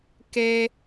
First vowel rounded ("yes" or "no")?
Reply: no